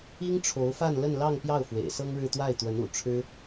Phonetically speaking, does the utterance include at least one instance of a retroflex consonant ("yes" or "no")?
yes